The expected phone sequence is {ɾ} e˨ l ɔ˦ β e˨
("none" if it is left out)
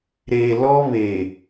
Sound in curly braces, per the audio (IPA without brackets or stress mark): ɾ